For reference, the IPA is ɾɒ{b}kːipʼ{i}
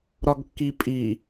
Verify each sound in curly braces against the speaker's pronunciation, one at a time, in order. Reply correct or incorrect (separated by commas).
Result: incorrect, correct